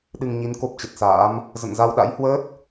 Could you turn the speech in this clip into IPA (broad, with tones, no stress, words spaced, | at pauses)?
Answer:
ɗɨ˧ŋɲi˨˦n ko˦˥p̚t͡ɕə˨˩t̚sa̰ː˧˥m | zə̰˧˨nza˧wɗa̰˧˥jhwəː˦˥t̚